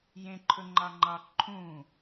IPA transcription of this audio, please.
j ẽ ǃʰ ɵ ŋ͡ǃ ɑ ŋ͡ǃ ɑ ǃʰ ũ

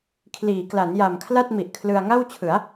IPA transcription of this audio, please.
kʰ l iː˩˦ k l a˩˦ n j a˨˩ m kʰ l a˥˩ t̚ m i˨˩ ʔ kʰ l ɯ˧ a̯ ŋ a˥˩ w t͡ɕʰ ɯ˩˦ a̯

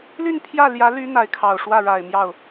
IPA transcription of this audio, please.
l y˥˧ n pʰ j ä˥˩ l j ä˧˥ l y˧˥ n̪ a˧˥ ɪ̯ kʰ ɑ˨˩ ʊ̯ ʂ w ä˥˩ ɻ a˨˩ ɪ̯ m j ɑ˥˩ ʊ̯

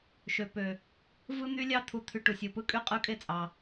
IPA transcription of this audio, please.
ʃ ø˨ p ø˨ | v ɯ˦ n̪ y˦ lʲ ɑ˦ t̪ʰ u˨ t̪ʰ y˨ ʈ u˨ sʲ ɯ˨ p ɯ˦ kʼ y˦ qʼ ɯ˦ kʼ e˦ t͡sʼ ɑ˨

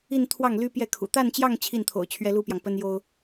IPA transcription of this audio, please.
i˥˧ n t̪ʰ w ɑ˥˩ ŋ l y˥ p j ɛ˥˩ kʰ ṵ˨˩ t̪ a˥˧ n t͡ɕ j ɑ˥˧ ŋ t͡ɕʰ i˥˩ n t̪ʰ o̰˨˩ ʊ̯ t͡ɕʰ ɥ ɛ˥ l u˥ p j ɑ˨ ŋ p ə˥ n j o˥ ʊ̯

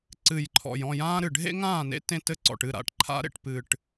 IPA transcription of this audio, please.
ǀ ɨ˨˩ j ǃʰ ɔ̰˨˩ j ɔ̃˥˩ j ãː˦ ɾ ɨ˨˩ ɖʱ ḛ˦ ŋ ãː˥˩ n ḛ˦ t ẽ˥˩ t ɘ˥˩ ǀ ɔ̰˨˩ ʈ ɨ˥˩ ɾ a̰˨˩ ʈ ǃʰ a̰˦ ɾ ḛ˥˩ ʈ p ɨ˨˩ ʈ

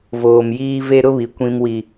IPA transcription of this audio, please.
v oː˨ m j iː˦ v e˦ ɾ ʊ˦ β i˨ kʷ ĩ˦ m w i˦

